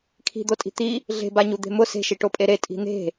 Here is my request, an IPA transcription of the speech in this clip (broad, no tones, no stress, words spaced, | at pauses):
kʰi̤d̪otʼi̤ t̪i | ɮe̤baɲud̪e̤ mʊ se̤ʃiʈopʼe ɾetʼi̤ n̪e̤